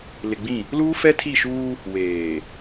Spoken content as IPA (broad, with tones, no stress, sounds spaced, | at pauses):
l ɪ˨ ɡ͡b ĩ˦˨ | l uː˦ f ɛ˦ tʰ i˦˨ ʃ uː˦ | w eː˨